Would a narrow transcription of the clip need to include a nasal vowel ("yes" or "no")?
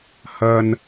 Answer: no